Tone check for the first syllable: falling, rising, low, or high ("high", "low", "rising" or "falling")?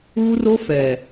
high